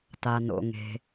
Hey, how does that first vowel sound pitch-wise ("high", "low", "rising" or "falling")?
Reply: low